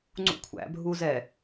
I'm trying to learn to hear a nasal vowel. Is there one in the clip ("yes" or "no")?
no